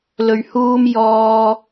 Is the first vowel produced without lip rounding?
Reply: no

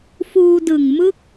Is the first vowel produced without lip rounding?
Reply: no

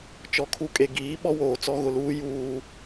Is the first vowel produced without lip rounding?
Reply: no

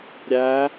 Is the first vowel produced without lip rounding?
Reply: yes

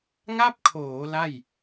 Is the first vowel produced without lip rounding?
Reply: yes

